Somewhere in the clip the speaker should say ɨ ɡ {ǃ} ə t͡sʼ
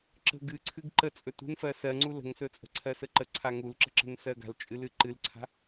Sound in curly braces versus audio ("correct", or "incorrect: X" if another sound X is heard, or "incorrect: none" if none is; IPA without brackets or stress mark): correct